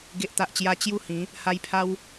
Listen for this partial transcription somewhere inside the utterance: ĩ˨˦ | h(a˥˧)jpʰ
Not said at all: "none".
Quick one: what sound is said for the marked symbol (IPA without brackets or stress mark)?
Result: a˧